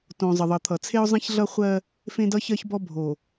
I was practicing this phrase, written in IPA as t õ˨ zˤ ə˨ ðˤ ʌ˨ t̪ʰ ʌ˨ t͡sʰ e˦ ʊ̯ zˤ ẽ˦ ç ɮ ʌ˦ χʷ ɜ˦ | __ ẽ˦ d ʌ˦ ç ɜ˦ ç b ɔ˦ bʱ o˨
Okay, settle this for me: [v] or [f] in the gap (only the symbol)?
f